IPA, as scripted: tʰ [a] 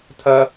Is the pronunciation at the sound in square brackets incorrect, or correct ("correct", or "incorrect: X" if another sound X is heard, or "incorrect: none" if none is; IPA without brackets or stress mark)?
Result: incorrect: ɐ